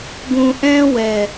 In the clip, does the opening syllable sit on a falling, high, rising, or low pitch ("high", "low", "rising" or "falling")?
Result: low